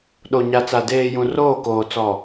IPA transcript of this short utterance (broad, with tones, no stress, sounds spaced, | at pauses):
ɗ o˨ ɲ a˨ t͡s a˨ d eː˨ j ũ˨ r oː˦˨ k oː˨ t͡s ɔ˨